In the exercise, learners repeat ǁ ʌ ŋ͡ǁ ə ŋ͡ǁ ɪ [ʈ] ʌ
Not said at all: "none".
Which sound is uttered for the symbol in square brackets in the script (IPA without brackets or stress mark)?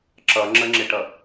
ʈ